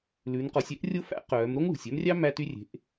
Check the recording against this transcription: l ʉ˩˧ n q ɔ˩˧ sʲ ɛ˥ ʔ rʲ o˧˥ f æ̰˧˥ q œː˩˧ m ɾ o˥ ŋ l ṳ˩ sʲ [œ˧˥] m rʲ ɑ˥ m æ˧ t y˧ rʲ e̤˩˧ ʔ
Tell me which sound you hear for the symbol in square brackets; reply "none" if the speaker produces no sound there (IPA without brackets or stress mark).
œ˧˥